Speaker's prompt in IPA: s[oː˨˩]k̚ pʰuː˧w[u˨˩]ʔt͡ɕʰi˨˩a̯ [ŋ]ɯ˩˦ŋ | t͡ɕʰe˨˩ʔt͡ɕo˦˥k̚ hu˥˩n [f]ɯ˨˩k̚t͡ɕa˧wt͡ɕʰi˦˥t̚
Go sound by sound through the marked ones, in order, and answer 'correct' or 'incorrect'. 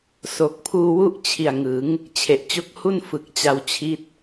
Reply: incorrect, incorrect, correct, correct

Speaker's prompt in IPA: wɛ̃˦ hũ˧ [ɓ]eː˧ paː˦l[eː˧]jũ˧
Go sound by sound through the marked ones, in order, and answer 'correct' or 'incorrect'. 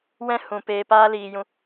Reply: incorrect, incorrect

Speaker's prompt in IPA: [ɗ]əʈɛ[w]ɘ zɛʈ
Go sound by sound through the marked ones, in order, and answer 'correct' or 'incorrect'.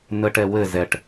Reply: incorrect, correct

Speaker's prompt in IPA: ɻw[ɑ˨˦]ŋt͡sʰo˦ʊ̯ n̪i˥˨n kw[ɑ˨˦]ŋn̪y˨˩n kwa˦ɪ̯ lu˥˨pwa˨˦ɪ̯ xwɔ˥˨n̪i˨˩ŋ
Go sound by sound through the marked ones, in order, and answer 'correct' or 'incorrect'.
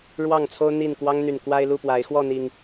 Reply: incorrect, incorrect

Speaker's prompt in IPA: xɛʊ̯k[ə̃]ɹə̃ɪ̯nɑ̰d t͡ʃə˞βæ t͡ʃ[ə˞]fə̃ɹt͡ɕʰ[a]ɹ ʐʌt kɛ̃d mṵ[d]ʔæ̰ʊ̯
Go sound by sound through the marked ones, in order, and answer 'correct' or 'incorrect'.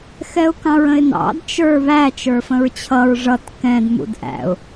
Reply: incorrect, correct, incorrect, correct

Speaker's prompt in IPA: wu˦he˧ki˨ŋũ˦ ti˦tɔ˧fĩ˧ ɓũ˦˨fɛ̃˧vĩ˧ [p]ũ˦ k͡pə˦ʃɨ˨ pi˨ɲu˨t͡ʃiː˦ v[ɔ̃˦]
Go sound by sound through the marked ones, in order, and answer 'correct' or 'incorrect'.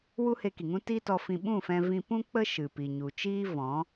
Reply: correct, incorrect

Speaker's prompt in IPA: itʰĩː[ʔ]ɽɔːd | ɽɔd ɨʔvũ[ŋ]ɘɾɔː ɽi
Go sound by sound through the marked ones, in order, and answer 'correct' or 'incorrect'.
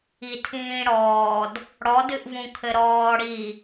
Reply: incorrect, incorrect

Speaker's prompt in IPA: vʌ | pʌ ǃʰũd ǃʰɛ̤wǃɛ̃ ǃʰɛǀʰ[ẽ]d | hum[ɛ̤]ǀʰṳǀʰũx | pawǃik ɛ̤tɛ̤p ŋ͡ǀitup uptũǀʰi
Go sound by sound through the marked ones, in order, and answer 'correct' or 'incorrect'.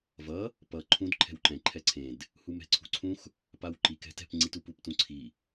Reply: correct, correct

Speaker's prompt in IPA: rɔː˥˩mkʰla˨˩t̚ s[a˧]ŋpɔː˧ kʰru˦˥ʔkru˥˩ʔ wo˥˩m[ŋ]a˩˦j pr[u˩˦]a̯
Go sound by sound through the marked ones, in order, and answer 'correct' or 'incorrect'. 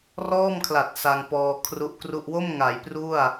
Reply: correct, correct, incorrect

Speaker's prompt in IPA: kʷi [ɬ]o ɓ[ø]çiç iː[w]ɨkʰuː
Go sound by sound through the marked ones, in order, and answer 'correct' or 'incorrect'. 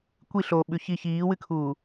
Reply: correct, incorrect, correct

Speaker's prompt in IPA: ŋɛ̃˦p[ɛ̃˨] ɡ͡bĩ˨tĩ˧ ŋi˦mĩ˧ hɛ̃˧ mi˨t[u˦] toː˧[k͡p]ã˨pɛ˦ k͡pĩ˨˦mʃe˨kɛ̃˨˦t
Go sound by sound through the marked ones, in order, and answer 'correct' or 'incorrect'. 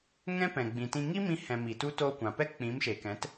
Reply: correct, correct, incorrect

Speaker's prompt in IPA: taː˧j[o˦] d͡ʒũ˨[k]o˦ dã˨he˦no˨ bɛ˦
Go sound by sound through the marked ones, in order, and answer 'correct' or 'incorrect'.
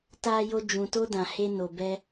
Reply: incorrect, incorrect

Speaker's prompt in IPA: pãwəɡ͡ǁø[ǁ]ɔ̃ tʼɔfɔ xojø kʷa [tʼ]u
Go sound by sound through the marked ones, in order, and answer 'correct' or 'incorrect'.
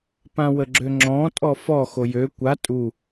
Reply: incorrect, correct

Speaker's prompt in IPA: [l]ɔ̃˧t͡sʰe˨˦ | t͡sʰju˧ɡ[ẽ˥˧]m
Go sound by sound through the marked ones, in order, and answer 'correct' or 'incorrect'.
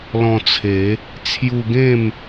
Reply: correct, correct

